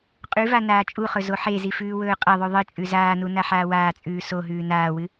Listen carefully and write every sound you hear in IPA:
qʼ ʉ v a n aː t͡ʃʼ u χ ɵ z o ħ e z i f ʉː w ɵː qʼ ɐ ðˤ ʉ ðˤ ɨ t͡ʃʼ ʉ z aː n u n a ħ aː w aː t͡sʼ ʉː s o ɦ ʉː n aː w ɨ

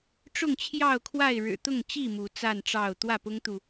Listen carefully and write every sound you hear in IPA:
ʈ͡ʂ ʊ˥˨ ŋ t͡ɕʰ j ɑ˥˨ ʊ̯ kʰ w a˥˨ ɪ̯ ɻ ɻ̩˨˩ t̪ ʊ˥˨ ŋ t͡ɕ i˥˨ m u˨˦ t͡s a˥˨ n ʈ͡ʂ ɑ˥˨ ʊ̯ t̪ w ä˥˨ p ʊ˦ ŋ t̪ u˨

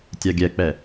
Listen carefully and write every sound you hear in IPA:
tʲ a ɡʲ ɛ k͡p ɛ

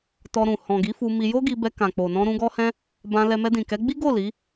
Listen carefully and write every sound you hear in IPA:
t ɔ˧ ɾ ũ˨ h ɔ̃˨ ɡ i˨˦ f u˧ m i˧ j o˦ ɡ i˧ b ɛ˧ k ã˨ k͡p o˨ n ɔ̃˧ ɾ ũ˧ ɡ ɔ˦ h ɛ̃˦ | b ã˧ l ɛ˧ m ɛ˧ d ĩ˨ k ɛ˨˦ ɡ͡b i˦ ɡ o˦˨ l i˨˦

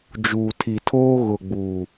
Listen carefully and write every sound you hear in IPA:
d͡ʒ uː˨ tʰ i˨ tʰ oː˦ ɣ ʊ˨ ɡ͡b uː˨

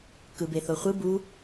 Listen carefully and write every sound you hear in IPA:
k ɯ b e θ o χʷ ɯ b u

